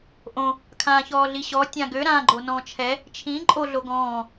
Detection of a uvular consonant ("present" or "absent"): absent